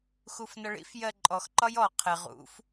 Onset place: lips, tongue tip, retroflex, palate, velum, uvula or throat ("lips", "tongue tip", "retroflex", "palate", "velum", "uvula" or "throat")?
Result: velum